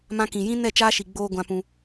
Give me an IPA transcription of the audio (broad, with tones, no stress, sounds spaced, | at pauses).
m ã˧ k ĩ˨ j ĩ˦ n ɛ˦˨ t͡ʃ aː˦ ʃ i˨ ɡ͡b oː˧ ɡʷ ã˧ p ũ˧